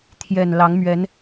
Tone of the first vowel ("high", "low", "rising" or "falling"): low